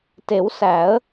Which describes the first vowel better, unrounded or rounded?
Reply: unrounded